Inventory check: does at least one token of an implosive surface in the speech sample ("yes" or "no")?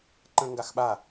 yes